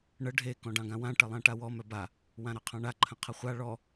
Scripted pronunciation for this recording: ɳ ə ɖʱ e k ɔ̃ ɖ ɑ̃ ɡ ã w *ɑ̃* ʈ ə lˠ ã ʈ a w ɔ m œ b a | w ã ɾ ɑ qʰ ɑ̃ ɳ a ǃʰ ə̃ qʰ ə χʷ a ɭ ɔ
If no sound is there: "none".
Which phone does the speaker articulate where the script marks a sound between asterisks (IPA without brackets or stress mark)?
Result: ã